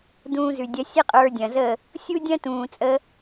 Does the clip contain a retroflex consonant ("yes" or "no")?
no